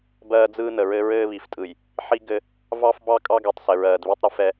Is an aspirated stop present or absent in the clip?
absent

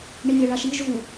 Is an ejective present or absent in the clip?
absent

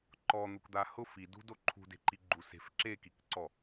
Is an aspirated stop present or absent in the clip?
present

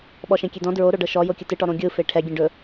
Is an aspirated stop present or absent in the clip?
present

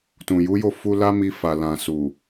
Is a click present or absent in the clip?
absent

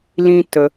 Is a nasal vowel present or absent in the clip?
present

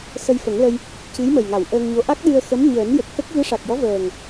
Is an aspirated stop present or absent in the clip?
absent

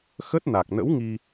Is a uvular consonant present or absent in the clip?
absent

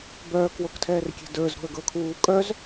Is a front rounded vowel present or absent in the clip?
present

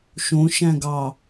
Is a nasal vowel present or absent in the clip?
present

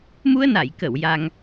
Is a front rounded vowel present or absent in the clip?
absent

